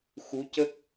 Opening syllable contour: rising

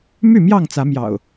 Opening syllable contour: falling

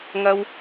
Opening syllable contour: high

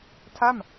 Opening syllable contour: falling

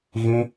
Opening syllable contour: high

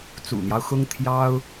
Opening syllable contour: low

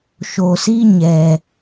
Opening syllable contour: low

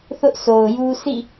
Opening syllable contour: high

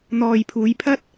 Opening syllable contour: low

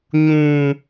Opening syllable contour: high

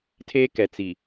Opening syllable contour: high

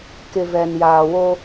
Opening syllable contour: low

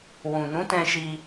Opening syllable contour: low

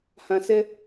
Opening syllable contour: low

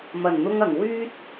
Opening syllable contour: low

